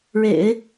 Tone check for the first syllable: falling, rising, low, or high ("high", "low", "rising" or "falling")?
low